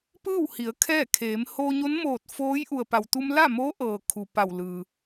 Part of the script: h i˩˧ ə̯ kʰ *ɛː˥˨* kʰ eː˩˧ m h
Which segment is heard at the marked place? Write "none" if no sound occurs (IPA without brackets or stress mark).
ɛː˥˨